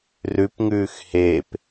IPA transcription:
rʉpŋʉːx heːp

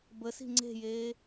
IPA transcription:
bəsi̤ ŋ͡ǀe̤jeː

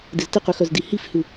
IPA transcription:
dɪztɪqʉ xœzdihifhʉ

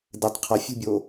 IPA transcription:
dɘtˤ qʰɐfʲṳbʲo

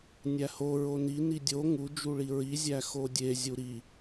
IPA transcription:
nʲæho ɹoni nidʲo ŋud͡ʒuɭi ɹizʲæ xodʲezʲu ɾi

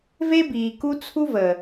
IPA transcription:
ve˦biː˨ku˦ t͡sʰu˦vəː˨

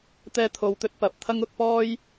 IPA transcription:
t̪ɛː˥t̪ʰo˧wt̪ɵ˥t̚ pɐ˨˥p̚t̪ʰɐ˥ŋʊ˨˥k̚ pɔː˥j

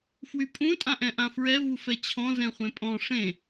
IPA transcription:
fwypʼũ tʼãʔɛ̃ʔãfɹɛ vufɛt͡ɕʰɔ̃ zɛ̃χʷẽpʼɔ̃ ʂẽ

